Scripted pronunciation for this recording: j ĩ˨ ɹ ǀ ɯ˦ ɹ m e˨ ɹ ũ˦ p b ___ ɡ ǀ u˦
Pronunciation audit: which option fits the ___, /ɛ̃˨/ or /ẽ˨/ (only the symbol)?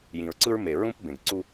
ẽ˨